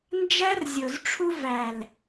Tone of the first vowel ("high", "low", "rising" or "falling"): high